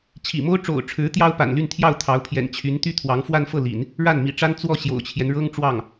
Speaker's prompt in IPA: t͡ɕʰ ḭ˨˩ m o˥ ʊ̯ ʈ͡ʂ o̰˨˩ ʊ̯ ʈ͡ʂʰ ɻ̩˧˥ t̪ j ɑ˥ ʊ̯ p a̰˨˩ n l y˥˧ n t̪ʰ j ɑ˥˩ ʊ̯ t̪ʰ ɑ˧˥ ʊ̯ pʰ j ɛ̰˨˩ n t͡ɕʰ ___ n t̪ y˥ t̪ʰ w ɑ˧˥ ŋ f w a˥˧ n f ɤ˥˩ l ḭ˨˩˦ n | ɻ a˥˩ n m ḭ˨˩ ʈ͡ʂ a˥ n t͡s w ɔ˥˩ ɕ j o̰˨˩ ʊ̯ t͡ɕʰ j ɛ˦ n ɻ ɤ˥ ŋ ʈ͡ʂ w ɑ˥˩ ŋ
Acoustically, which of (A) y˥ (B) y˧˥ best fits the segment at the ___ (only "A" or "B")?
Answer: B